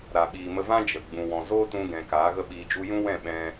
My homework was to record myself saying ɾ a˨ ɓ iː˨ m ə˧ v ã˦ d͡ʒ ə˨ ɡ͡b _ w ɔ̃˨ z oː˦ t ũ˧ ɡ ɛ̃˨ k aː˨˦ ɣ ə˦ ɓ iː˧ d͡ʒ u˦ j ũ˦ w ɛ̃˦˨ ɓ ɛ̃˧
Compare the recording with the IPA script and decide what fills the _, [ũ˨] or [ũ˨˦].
ũ˨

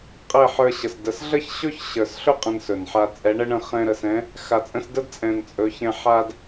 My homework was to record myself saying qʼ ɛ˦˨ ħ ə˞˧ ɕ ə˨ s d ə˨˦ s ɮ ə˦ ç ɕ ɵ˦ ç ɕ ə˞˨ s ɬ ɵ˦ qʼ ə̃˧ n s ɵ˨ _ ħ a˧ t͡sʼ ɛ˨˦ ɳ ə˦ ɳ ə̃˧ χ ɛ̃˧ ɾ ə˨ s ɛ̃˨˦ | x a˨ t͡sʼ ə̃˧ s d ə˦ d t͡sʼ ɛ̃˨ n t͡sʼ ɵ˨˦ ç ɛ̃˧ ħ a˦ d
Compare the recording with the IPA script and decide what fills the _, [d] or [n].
n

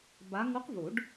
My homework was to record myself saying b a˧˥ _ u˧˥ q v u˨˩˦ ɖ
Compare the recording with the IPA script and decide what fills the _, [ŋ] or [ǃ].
ŋ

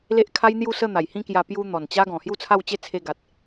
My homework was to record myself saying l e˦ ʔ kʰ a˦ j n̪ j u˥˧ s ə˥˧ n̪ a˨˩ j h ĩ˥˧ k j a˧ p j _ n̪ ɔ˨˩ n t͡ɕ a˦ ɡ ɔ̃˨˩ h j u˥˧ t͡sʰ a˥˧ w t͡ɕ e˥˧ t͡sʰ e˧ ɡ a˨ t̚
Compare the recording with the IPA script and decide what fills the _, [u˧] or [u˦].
u˧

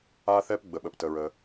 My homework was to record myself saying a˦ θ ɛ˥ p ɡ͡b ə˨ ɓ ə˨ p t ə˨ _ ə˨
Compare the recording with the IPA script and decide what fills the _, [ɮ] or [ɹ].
ɹ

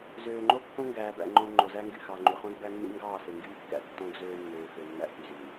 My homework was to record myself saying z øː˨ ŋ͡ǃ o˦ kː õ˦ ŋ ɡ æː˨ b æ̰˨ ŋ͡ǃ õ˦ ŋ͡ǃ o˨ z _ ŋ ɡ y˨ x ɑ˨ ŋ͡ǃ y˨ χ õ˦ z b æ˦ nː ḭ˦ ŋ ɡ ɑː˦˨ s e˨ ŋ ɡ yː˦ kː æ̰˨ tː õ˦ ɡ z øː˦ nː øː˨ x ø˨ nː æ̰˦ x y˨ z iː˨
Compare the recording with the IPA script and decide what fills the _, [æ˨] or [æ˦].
æ˦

